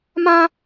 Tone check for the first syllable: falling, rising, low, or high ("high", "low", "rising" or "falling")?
high